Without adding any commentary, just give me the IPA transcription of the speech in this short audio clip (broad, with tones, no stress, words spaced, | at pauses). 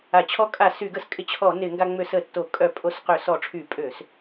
a˧˩˧ t͡ɕʰɔ˧kʼa˧˩˧ sy˧˩˧ɡə˧skʼɪ˧t͡ɕʰɔ˧˩˧ nɪ˧˩˧ŋɡa˧ ŋ͡mø˧˩˧sə˧˩˧ tːo˧˩˧ kʼœ˧˩˧ pʼo˧sqø˧˩˧ sɔ˧˩˧ʈ͡ʂʰy˧˩˧pʼø˧˩˧s